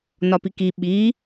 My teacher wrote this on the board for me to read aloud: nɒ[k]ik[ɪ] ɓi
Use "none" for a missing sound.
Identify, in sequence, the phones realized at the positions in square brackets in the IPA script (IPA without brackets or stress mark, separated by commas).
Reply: p, i